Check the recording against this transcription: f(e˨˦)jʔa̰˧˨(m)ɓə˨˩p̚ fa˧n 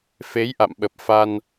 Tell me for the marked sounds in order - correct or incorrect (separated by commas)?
correct, correct